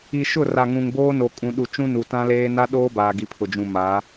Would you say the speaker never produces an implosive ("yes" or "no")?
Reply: no